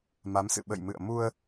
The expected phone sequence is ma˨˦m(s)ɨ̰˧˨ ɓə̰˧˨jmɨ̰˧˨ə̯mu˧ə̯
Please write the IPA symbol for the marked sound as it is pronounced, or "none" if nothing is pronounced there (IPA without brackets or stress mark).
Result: s